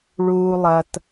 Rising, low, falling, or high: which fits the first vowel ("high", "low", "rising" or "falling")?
low